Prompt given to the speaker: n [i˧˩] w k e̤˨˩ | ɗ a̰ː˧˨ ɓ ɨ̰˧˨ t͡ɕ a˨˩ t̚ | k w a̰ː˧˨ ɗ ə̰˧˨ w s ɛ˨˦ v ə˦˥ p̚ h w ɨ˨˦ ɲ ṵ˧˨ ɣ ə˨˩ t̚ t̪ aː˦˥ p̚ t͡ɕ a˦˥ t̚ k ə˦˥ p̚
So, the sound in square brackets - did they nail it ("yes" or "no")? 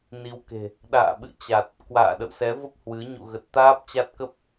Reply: no